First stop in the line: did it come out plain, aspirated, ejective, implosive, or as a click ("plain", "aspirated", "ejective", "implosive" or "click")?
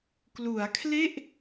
plain